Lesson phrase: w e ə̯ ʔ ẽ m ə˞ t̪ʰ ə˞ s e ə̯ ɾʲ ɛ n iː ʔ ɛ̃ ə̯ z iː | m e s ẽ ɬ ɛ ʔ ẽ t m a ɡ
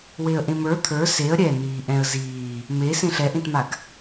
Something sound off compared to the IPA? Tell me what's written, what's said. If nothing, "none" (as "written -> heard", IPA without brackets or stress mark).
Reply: none